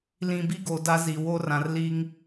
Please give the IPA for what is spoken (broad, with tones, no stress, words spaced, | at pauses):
lĩ˨bi˦ ɡo˨da˦zi˨ wo˦rã˨rliː˦ŋ